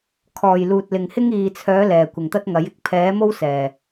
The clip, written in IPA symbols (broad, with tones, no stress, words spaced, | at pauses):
kʰɔː˨˩j luː˨t̚lɪ˨ŋ hɪ˥ŋiː˨t͡sʰœː˨˥ lɛː˨˩kʷɪ˨˩ŋt̪ɐ˥t̚ŋɐ˨˥j ɪ˨˥k̚pʰɛː˨˥mo˥w sɛː˨˩